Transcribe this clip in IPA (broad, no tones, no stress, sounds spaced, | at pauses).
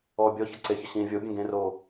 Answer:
ɔː bʲ ɔ ç ʌ ǀ e ç ə ɕ ĩː vʲ o bʲ ẽ ɡ ẽ r oː